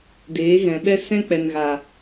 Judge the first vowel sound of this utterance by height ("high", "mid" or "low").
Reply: mid